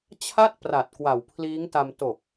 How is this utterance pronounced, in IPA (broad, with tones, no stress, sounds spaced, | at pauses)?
t͡ɕʰ a˥˩ t̚ p r a˨˩ t̚ k w a˨˩ w pʰ l iː˦˥ ŋ t a˧ m t o˨˩ k̚